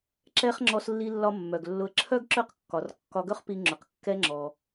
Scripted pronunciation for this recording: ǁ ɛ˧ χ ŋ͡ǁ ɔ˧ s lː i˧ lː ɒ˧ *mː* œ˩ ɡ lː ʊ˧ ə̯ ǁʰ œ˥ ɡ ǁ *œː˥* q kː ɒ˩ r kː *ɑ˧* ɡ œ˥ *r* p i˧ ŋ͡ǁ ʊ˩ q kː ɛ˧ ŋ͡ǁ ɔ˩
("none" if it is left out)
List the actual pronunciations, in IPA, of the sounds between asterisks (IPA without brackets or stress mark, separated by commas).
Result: mː, œ˥, ɒ˧, χ